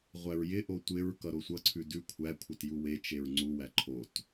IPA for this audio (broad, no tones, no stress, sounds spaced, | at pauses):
ʁʷ æ ɹ j ɪ ʔ o tʷ ɪ ɹ k ʌ ɾ o sʷ ʌ ǀʰ ʉ d ʉ kʷʰ æ kʷʰ ɪ t j u w e t͡ʃ e ɹ ŋ͡ǀ u w æ ǃʰ o t